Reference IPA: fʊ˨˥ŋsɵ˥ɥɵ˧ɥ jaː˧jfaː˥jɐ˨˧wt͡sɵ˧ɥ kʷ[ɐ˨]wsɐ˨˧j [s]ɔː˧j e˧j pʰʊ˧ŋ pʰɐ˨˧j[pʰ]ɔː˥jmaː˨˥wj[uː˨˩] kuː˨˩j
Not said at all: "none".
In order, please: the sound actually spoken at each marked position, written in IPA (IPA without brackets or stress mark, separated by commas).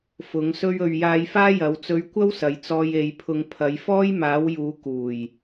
ɐ˥, t͡s, f, uː˨˧